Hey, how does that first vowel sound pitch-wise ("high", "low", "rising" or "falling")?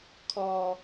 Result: low